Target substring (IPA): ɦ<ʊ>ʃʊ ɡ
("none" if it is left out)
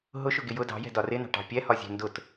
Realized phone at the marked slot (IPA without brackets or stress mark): ʊ